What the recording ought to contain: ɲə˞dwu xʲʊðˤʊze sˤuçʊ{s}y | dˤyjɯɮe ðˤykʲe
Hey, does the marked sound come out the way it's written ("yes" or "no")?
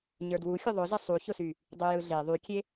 yes